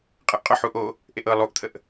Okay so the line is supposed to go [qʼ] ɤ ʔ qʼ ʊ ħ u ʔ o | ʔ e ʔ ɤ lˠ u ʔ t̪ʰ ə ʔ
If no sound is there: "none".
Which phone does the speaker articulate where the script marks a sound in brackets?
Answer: qʼ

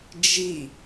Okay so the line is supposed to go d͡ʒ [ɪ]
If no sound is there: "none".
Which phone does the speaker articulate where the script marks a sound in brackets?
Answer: i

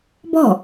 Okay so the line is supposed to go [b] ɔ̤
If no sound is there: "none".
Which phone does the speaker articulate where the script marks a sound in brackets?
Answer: b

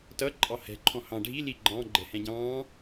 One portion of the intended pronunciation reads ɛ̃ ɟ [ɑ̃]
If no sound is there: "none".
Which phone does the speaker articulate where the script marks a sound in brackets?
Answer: ɑ̃ː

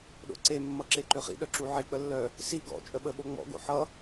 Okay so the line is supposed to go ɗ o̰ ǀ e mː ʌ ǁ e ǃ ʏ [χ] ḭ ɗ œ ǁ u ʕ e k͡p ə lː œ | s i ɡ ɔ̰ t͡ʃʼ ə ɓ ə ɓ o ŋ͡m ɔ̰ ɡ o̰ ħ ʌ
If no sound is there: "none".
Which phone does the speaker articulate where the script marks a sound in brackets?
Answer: χ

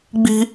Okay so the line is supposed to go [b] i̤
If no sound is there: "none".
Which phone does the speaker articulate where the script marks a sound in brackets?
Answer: ɡ͡b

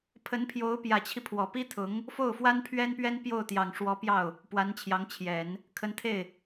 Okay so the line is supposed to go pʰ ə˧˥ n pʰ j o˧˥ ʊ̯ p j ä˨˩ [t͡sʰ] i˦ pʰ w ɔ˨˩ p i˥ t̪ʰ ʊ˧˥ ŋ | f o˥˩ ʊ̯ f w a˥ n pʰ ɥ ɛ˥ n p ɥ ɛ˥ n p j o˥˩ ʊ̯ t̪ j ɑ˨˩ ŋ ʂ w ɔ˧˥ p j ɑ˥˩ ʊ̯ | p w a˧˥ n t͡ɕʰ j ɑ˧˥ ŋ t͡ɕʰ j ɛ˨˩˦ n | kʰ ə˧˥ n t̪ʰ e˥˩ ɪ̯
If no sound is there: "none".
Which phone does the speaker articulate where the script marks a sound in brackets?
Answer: t͡ɕʰ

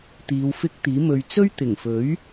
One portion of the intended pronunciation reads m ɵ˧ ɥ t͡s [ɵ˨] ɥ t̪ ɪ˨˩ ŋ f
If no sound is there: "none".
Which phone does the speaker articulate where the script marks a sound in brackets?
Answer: ɵ˥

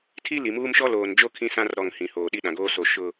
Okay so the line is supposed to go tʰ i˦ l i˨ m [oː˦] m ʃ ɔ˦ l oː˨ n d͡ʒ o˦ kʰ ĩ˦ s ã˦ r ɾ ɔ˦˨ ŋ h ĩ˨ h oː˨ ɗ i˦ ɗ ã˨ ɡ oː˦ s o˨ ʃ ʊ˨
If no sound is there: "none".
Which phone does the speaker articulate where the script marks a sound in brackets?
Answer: uː˦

